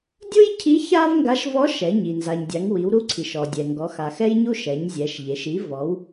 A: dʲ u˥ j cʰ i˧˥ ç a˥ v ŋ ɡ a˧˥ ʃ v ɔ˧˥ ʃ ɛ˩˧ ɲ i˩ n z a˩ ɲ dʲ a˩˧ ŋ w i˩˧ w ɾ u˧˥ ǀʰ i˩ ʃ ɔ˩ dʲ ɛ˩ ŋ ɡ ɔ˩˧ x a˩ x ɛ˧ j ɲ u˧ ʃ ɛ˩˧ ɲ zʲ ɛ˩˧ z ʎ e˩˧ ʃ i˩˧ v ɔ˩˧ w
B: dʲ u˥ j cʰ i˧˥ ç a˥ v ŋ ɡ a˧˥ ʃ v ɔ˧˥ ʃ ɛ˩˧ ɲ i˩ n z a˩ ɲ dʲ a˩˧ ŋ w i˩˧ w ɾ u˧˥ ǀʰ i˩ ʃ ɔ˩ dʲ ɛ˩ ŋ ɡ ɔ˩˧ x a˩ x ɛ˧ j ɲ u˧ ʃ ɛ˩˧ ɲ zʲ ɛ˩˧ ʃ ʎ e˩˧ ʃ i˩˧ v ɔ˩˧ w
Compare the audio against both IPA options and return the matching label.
B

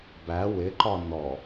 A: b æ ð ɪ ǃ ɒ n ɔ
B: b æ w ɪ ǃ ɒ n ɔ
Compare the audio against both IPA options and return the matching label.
B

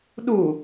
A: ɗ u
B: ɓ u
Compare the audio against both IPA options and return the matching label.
A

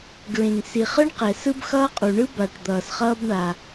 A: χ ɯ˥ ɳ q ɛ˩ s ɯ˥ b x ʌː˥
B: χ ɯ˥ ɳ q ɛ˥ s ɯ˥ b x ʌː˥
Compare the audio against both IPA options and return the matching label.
A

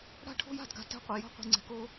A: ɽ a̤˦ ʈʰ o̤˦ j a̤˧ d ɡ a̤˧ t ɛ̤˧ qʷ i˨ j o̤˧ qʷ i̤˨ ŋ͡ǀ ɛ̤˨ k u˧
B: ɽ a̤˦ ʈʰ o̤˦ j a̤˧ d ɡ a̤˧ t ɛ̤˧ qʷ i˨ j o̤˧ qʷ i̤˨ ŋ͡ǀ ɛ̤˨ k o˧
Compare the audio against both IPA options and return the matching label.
B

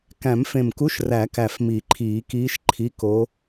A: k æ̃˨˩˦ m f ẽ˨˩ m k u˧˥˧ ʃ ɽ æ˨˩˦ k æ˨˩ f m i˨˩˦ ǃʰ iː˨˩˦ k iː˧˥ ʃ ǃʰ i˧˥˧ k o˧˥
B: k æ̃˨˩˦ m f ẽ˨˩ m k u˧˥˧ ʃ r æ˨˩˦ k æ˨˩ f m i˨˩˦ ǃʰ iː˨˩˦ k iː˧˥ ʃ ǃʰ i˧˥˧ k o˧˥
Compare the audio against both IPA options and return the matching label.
B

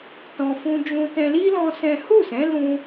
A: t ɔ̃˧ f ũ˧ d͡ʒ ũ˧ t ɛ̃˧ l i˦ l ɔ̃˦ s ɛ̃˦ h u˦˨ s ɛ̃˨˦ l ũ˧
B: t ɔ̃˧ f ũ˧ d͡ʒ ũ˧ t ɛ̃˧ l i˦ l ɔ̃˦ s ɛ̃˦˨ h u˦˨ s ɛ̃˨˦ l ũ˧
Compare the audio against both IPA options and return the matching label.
A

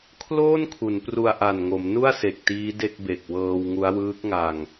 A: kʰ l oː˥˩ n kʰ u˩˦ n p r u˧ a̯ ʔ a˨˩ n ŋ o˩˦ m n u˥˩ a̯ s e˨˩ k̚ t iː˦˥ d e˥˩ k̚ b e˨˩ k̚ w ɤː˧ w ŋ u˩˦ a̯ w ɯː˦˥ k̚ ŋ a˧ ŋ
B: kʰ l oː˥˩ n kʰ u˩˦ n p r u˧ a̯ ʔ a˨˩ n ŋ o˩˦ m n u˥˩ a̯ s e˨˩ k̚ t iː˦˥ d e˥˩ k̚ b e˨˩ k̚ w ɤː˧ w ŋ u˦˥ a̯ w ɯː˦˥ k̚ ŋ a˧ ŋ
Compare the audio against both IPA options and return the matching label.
B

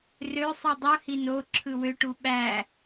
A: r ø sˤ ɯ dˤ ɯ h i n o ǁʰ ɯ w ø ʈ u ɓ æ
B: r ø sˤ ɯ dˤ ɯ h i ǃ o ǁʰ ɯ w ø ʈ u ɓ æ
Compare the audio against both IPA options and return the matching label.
A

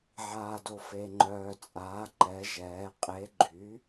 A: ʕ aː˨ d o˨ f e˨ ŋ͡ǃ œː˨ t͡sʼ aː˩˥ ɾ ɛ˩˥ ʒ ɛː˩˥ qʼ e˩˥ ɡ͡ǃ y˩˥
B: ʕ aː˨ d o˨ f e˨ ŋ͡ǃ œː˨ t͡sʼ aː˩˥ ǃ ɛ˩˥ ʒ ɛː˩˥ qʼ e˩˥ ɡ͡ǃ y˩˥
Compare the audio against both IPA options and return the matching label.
B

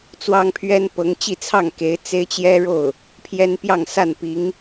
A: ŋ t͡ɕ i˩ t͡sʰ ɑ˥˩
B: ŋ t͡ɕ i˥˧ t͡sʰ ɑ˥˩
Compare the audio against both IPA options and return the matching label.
B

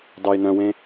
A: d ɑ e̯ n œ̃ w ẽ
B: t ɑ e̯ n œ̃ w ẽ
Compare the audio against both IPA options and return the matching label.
A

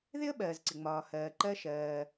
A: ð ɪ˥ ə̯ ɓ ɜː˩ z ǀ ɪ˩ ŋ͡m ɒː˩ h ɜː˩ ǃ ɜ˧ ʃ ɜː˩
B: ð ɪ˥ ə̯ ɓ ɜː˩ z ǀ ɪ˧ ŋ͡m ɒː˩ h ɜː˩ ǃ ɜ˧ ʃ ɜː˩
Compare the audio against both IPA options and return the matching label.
A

